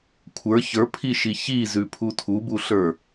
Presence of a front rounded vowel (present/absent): absent